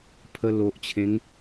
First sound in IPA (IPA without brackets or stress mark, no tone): pʰ